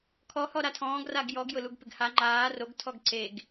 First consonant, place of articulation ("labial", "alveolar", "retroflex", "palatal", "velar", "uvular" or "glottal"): velar